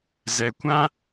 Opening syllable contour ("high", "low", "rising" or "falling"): low